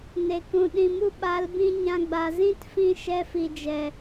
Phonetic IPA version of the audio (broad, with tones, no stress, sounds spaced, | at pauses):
n e˨ k ũ˨ ɗ ĩ˨ m u˧ ɓ a˨˦ l b ĩ˧ ɲ ã˧ ɡ͡b a˨ z ĩ˦ t f ĩ˧ ʃ ɛ˧ f i˨ d͡ʒ ɛ˨